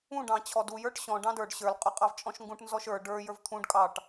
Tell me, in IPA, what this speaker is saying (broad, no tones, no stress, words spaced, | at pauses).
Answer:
ũ ɖɑ̃t͡ɕʰɔdu jə˞ʈɕɔ̃ ɖɑ̃də˞ɖ ɕə˞l qʼʊqʼɑvt͡ʃʼɔ̃ʃŋɡũʈ nzɔʃə˞ ɖə˞ jə˞vt̪ʰũɖ kʼɑʈ